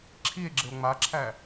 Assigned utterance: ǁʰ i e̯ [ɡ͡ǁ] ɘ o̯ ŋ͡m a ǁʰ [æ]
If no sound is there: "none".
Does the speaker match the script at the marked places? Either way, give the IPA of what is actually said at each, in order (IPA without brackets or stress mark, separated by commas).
ɡ͡ǁ, æ